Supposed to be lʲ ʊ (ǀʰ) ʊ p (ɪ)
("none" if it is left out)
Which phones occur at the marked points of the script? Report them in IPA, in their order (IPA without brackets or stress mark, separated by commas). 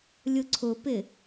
ǀʰ, ɪ